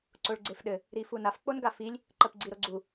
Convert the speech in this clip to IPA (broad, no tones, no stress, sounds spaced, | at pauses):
ǀ o ɭ ɡ͡ǀ e f ɗ ɘ | ɾ i f u n a f k͡p o n ɡ a f i lʲ | ǃ ɜ p ɡ͡ǀ i ɾ o ɡ͡ǀ u